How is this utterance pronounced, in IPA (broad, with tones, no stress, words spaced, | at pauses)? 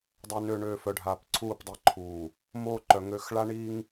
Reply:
dˤø˨nø˨ɳøː˨ fœ˨ɖʱaː˨p ǀʰuː˦˨pdˤi˨ǃʰuː˨ | moː˦ǃœ˨ŋø˦˨x ɭa˦ɳiː˦ŋ